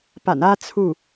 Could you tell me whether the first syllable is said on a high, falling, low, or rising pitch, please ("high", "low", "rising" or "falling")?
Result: low